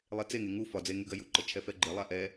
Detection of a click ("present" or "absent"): present